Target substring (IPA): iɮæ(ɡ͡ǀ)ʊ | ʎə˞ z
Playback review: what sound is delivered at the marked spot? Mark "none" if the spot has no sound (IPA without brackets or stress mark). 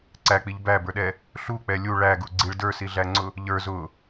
ŋ͡ǀ